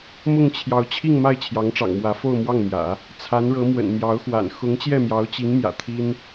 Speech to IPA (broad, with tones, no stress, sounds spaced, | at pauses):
m ʊ˥˩ ŋ t͡ɕʰ j ɑ˧˥ ʊ̯ t͡ɕʰ i˥˧ ŋ m a˥˩ ɪ̯ t͡ɕʰ j ɑ˧˥ ŋ ʈ͡ʂ ɑ̰˨˩ ŋ m w ä˧˥ f o˥˧ ʊ̯ m w ɑ˥˩ ŋ m j ä̰˨˩˦ | t͡sʰ a˧˥ n ɻ ɤ˧˥ m w ə̰˨˩ n m j ɑ˧˥ ʊ̯ x w a̰˨˩ n x ʊ˧˥ ŋ t͡ɕ j ɛ˥˩ m j ɑ˧˥ ʊ̯ t͡ɕ i˧˥ ŋ m j ä̰˨˩ t̪ʰ i˥ n